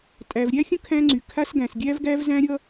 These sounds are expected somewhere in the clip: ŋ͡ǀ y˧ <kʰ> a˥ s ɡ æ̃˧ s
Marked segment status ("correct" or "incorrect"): correct